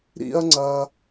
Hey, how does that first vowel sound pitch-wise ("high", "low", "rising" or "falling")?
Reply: high